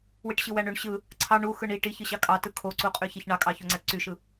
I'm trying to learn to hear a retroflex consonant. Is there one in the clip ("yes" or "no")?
yes